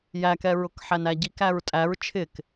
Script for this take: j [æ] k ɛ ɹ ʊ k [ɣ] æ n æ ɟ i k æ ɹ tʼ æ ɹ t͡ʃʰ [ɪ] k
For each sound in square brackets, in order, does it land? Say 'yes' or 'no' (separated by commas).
yes, no, yes